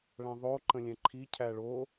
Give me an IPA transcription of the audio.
ɭ æ̃ ðˤ o ǃ ə̃ lʲ ɛ̃ ǃʰ i cʰ æ ɭ o

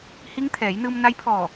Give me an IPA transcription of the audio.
h i˧˥ ŋ t̪ʰ ɛː˩˧ j n ɯː˧ m n a˧˥ j pʰ ɔː˧˩

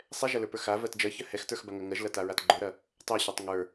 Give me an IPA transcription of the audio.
sˤ ɛ ʒ ɐ l ə˞ p ə˞ x a v ɜ t d͡ʒ ɜ ç ɜ h ɛ x t ə˞ x b a ŋ ɐ ŋ ɜ ʒ l ɐ t a ɹ a t ɡ͡ǃ ə˞ ɾ ɐ | tˤ u ɕ u tˤ ŋ ə˞

